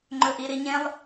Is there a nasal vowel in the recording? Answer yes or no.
yes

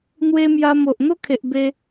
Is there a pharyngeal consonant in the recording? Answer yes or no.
no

